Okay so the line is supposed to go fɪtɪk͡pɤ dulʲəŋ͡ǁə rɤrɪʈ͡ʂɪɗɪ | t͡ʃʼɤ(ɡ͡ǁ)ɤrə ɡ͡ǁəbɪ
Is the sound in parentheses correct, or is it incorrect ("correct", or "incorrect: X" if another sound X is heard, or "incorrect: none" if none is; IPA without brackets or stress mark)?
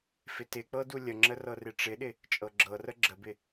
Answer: correct